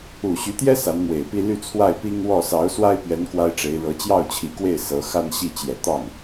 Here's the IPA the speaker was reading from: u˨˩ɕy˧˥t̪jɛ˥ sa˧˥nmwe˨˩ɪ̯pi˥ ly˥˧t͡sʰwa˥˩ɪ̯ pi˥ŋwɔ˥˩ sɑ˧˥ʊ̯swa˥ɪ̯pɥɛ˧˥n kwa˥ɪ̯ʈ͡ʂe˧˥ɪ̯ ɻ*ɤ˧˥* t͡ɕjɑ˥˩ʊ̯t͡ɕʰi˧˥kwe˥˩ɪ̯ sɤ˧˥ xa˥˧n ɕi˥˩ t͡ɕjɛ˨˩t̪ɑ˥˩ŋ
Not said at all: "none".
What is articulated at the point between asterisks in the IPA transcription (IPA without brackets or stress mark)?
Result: ɤ˧˥